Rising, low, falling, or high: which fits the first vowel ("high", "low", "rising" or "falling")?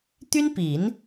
high